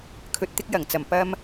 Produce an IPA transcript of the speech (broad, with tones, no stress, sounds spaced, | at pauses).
kʰ ɵ˨ t̚ t̪ ɪ˧ k̚ j ɐ˨˩ ŋ t͡s ɐ˨˩ m p ɐ˧ m